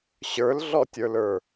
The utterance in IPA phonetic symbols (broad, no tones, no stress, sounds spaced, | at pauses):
ɕ ə˞ l ɮ ɔ tʲ ə˞ l ə˞